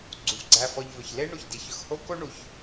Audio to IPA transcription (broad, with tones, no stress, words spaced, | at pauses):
ɡ͡ǀu˩vɡ͡ǀæ˨fɔ˨ʎ vɵ˩çle˥ ɳu˩çdi˩çɵ˨xho˥ ko˥ɳu˩ç